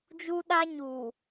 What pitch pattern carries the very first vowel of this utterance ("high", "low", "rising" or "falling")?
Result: high